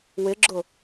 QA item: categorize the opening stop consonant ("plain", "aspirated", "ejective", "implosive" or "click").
click